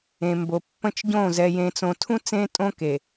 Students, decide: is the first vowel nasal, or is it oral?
nasal